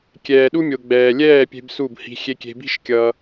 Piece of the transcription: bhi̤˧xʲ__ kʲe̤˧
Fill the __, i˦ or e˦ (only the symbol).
e˦